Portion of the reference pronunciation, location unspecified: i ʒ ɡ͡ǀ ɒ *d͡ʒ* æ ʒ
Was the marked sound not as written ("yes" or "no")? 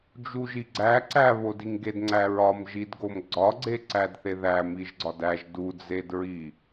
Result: yes